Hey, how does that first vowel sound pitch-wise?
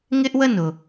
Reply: high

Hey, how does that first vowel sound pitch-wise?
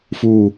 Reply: low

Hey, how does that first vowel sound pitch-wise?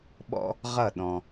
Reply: high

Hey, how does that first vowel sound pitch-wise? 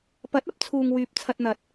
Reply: rising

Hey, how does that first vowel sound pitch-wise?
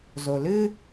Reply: low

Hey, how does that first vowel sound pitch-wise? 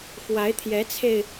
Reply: rising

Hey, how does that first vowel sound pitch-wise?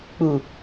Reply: low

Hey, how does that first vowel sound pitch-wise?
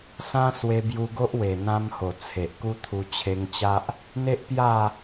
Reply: high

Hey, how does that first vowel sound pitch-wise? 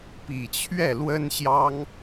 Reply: low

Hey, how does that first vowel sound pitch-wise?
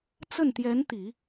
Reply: falling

